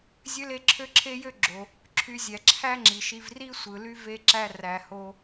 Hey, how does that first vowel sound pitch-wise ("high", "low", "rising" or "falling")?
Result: high